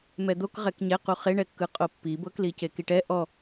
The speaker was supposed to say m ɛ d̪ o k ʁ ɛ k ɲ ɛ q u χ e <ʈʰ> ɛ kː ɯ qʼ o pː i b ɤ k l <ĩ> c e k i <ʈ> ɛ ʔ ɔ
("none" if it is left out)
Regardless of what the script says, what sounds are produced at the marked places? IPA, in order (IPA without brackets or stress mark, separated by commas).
ɳ, i, ʈ